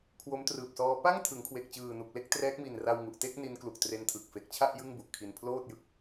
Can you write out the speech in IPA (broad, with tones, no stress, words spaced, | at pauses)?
kʰwo˦˥mtrɯː˨˩p̚sɔː˦˥ pa˥˩ŋtʰɯ˩˦ŋkʰwe˨˩k̚t͡ɕɯː˨˩ nu˨˩k̚le˥˩k̚trɛː˦˥k̚mi˨˩n ra˧wŋu˨˩ʔte˥˩k̚ ni˦˥nklu˨˩k̚tre˧ntʰɯ˨˩k̚ fe˨˩k̚t͡ɕʰa˥˩ʔ jɯ˥˩ŋbu˨˩ʔkʰi˧n pʰloː˥˩t̚jɯ˦˥k̚